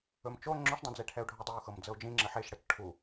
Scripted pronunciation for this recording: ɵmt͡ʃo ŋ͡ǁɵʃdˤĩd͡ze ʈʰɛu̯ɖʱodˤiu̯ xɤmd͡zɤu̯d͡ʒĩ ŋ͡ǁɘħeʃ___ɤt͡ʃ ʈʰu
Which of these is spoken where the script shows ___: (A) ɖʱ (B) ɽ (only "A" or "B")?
B